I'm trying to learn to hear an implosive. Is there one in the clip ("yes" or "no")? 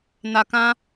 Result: no